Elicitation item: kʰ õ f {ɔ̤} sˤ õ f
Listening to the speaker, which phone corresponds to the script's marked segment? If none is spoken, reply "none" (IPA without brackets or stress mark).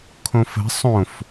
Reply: ə̤